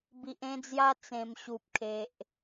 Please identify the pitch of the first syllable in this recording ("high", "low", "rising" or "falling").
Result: low